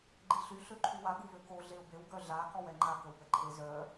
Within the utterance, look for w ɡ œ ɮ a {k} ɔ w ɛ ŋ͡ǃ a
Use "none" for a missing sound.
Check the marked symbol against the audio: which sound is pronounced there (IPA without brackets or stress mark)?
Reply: k